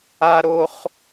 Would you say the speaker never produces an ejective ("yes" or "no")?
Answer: yes